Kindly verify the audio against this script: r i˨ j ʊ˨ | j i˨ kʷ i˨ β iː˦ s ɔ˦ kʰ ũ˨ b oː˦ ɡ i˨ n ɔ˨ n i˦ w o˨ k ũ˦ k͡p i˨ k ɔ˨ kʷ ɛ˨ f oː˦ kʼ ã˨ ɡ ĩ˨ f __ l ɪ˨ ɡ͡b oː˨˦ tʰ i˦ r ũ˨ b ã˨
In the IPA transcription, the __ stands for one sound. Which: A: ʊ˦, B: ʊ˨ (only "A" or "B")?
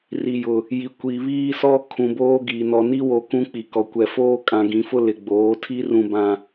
A